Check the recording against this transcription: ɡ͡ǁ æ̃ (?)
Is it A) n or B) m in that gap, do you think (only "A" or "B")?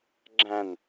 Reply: A